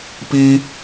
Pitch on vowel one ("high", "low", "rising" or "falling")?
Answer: high